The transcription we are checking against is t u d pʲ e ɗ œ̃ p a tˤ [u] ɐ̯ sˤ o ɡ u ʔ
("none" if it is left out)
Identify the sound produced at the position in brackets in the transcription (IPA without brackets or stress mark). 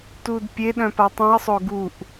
ũ